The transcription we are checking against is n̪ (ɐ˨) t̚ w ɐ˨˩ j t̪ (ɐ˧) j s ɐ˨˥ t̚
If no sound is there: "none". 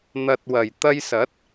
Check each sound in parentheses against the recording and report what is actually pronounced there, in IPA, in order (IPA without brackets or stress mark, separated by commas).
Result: ɐ˨, ɐ˧